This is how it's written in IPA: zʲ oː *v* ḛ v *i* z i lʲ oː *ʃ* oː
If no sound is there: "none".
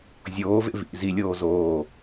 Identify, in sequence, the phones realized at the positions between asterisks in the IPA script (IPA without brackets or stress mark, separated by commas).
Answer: v, ḭ, z